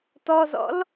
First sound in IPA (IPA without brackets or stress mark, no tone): t